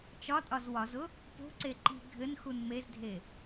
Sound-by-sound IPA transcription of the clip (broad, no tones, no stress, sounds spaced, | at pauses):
t͡ʃ ɒ tʼ ɒ z w ɒ z ʊ | p o̤ ǀ e ǃ i̤ ɡʱ ɘ n x u n m e z dʱ e